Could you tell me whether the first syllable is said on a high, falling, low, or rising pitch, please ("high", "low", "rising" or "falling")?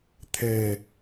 low